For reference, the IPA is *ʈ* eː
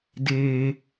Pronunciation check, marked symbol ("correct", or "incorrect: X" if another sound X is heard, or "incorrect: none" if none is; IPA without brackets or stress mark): incorrect: d